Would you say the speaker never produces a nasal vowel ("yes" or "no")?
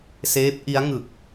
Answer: yes